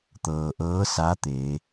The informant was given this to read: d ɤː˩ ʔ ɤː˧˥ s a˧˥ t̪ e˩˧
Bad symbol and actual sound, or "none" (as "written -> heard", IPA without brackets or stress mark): d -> t̪